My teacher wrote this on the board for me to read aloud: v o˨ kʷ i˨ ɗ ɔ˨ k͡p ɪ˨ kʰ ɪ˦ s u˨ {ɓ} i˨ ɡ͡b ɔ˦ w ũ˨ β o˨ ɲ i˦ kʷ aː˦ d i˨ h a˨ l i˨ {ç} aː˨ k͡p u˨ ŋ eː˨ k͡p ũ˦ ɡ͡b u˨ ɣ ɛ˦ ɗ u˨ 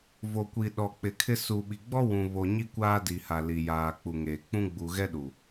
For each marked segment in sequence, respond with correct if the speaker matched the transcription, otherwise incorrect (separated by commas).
correct, incorrect